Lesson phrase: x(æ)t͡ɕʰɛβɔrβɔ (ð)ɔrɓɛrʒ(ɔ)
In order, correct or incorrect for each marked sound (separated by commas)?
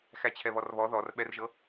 correct, correct, incorrect